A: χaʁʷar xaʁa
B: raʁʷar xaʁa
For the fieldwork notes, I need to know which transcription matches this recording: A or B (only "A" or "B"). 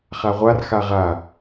A